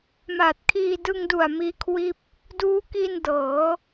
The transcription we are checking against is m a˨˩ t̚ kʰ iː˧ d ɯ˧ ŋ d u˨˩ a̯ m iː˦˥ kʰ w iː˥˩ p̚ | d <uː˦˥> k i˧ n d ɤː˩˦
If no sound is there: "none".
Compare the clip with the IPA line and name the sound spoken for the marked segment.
uː˦˥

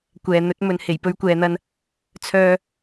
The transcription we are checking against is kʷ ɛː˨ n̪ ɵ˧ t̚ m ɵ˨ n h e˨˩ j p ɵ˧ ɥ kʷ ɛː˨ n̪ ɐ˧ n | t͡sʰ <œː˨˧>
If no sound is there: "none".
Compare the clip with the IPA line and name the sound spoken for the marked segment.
œː˨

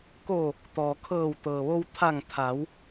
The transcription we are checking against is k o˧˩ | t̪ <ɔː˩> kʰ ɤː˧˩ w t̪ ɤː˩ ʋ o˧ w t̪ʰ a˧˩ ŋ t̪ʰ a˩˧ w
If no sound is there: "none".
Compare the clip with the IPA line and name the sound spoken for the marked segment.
ɔː˩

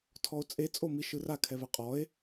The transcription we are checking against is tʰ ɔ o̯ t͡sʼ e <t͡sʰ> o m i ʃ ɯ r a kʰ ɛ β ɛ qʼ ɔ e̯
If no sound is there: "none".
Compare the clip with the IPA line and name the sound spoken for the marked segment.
t͡sʼ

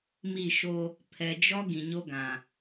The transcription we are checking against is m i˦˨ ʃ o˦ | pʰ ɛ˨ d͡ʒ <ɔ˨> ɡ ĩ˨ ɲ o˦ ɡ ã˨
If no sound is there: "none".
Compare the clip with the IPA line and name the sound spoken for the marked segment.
ɔ˦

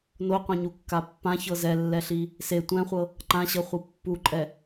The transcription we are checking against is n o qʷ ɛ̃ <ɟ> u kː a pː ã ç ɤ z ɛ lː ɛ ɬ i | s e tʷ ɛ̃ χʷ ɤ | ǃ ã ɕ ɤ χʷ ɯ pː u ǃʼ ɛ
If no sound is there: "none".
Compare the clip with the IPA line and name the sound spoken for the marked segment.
ɲ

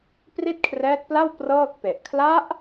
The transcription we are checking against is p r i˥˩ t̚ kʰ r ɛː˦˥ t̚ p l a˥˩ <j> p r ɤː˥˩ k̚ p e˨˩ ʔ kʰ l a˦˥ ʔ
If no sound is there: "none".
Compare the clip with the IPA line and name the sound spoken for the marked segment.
w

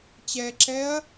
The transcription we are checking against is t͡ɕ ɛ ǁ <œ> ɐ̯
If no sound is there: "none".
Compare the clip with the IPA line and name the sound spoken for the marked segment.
ɛ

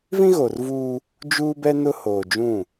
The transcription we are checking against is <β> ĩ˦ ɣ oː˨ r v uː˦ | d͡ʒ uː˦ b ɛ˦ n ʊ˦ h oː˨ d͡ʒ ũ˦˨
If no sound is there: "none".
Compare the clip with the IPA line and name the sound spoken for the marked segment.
v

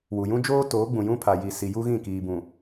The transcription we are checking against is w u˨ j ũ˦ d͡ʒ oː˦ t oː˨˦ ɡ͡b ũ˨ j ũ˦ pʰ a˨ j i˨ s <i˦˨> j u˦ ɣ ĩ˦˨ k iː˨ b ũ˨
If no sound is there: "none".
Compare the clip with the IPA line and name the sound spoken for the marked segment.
i˨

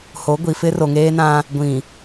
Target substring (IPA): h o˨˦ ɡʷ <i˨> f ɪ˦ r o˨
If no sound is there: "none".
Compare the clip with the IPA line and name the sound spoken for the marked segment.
i˨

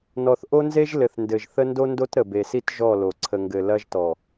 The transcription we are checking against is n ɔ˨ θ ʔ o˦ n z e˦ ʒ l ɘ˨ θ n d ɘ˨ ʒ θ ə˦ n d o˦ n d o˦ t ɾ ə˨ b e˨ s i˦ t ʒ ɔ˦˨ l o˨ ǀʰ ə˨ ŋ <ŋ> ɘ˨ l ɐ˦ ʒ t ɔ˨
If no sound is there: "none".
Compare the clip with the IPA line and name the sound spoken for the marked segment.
ɡ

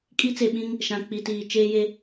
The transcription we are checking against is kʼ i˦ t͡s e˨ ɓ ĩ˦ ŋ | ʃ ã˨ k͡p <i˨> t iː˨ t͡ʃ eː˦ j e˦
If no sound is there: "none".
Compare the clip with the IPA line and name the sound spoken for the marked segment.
i˨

